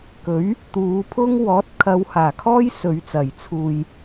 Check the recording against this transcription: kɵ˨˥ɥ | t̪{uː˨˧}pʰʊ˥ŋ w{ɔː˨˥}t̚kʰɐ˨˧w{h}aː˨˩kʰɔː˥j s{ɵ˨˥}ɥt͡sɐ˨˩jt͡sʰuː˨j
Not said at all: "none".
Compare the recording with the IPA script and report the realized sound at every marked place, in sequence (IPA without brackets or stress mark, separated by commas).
uː˨˧, ɔː˨˥, h, ɵ˨